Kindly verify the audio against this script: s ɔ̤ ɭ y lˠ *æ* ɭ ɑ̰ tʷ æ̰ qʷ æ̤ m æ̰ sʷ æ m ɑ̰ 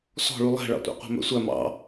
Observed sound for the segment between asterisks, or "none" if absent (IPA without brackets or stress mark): æ̤